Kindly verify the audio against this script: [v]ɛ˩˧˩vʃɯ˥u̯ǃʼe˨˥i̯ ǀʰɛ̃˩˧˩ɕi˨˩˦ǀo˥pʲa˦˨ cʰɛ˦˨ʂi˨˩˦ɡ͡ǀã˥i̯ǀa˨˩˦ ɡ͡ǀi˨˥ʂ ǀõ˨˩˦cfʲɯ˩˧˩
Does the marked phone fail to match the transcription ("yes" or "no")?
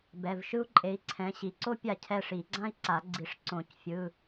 yes